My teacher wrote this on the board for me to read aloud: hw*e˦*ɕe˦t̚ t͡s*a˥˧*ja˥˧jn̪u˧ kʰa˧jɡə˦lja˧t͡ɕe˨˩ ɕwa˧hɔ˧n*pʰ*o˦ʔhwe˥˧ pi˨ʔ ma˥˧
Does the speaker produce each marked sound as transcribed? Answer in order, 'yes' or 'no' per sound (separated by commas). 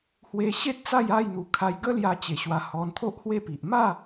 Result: no, yes, no